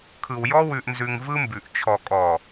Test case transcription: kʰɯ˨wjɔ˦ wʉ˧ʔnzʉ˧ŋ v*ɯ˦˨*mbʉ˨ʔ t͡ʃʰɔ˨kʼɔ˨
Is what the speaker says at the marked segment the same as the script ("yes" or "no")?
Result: no